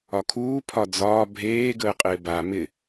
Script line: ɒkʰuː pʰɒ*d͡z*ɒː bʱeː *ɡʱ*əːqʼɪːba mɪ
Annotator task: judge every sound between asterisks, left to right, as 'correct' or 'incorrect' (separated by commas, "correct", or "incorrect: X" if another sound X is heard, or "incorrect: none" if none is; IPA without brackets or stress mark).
correct, incorrect: ɡ